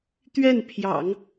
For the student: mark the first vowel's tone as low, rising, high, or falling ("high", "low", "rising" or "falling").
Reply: falling